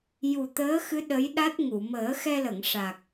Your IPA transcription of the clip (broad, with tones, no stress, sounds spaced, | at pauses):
j u˨˩ t̪ əː˧˥ x ɨ˧˥ ɗ ə˧˥ j ɗ a˦˥ t̚ ŋ u˨˩˨ m əː˨˩˦ x ɛ˧ l ə˨˩˨ ŋ ʂ a˨˩ k̚